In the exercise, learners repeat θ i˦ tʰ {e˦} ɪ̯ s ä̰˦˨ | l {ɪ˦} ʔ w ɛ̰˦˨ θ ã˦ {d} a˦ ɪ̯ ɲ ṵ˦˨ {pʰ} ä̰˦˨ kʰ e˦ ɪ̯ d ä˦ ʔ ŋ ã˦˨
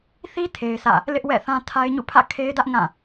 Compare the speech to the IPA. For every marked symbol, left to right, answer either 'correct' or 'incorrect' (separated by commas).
correct, correct, incorrect, correct